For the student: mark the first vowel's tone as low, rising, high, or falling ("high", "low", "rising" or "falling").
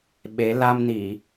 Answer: rising